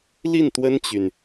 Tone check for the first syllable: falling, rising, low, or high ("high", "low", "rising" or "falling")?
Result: falling